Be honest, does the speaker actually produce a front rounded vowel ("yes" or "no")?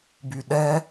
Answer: yes